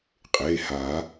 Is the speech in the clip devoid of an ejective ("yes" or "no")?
no